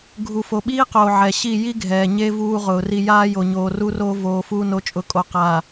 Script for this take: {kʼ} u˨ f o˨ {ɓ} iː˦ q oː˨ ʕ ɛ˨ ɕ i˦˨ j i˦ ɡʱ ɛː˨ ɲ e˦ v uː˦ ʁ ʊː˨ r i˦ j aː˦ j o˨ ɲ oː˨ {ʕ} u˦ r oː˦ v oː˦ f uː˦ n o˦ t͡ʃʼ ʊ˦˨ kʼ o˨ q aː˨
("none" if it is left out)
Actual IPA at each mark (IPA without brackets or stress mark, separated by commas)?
ɡʱ, ɓ, r